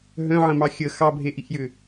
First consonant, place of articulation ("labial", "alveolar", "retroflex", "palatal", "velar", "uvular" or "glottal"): glottal